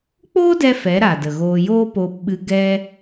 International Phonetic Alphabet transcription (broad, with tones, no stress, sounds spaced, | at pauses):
k͡p oː˦ d ɛ˧ f ɛ˨˦ ɾ a˨ d ə˨ ɣ oː˧ j oː˦ p oː˧ p ɓ ɨ˧ ɡ ɛ˦